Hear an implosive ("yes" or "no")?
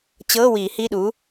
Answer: yes